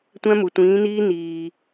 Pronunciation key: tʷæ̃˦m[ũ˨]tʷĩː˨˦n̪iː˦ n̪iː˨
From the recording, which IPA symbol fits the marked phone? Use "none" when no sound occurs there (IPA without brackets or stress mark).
u˨